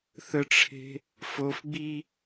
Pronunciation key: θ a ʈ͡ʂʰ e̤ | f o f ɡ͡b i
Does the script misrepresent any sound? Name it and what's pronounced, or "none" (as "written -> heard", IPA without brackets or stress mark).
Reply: a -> ə